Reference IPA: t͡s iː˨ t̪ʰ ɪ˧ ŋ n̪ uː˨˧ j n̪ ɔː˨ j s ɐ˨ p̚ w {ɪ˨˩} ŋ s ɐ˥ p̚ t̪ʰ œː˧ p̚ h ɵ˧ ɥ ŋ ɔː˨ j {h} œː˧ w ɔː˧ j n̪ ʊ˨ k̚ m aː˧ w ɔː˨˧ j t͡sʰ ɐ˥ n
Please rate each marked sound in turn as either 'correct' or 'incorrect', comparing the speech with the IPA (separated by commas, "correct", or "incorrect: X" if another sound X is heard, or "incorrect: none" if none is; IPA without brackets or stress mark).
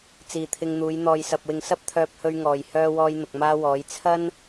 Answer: incorrect: ɪ˨, correct